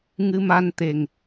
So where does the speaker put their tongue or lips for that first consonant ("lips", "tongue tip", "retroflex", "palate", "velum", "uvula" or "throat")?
velum